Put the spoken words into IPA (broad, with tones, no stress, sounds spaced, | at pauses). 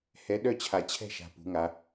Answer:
h ɛ˧˥ ɗ œ˥˨ t͡ɕʰ a˧ t͡ɕʰ ɛ̤˥˨ ʃ a̤˧ p ṳ˧˥ ŋ a˧˥